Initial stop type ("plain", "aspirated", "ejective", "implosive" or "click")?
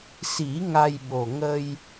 implosive